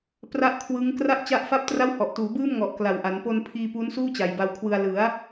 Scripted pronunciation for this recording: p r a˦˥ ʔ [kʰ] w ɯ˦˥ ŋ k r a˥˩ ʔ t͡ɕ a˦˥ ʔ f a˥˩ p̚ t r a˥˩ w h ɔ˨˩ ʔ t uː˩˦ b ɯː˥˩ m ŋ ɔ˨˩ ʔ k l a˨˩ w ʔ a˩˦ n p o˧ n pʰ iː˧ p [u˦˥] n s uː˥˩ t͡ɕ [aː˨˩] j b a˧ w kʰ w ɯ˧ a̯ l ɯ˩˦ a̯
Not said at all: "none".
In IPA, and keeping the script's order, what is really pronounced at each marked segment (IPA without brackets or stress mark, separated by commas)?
kʰ, u˦˥, a˨˩